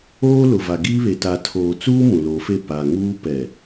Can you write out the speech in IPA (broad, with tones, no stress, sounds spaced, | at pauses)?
oː˦ l ʊ˨ v a˨ ɡ iː˦ β e˨ t a˨ tʰ oː˨ t͡s uː˦ m ũ˨ l o˨˦ f e˦˨ p a˨ ŋ uː˦ p ɛ˨